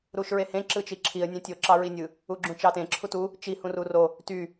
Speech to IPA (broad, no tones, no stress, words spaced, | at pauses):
ɾuʃɹehẽ ǁɯt͡ʃiǁʰiə̯ nʲẽtʲo ǁɑɹinʲɯ | uɡ͡ǁũt͡ʃɑtẽ ǁʰutu | t͡ʃi hũruro | ty